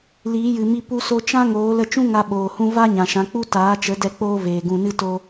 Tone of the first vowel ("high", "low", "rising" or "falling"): rising